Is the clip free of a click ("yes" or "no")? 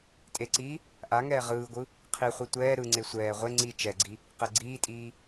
no